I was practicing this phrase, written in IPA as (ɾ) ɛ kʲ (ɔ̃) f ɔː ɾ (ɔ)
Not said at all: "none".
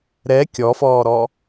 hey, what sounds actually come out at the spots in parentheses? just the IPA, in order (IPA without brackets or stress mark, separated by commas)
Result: ɾ, ɔ, ɔ